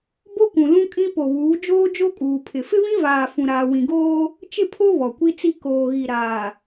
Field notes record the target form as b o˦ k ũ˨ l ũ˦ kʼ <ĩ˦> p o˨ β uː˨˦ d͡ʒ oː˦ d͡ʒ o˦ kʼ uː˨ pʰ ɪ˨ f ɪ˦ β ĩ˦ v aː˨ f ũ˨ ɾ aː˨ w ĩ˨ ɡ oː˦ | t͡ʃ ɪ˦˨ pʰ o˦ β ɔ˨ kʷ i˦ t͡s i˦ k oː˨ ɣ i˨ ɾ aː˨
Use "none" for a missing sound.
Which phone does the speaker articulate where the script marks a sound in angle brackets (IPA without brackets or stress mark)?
ĩ˦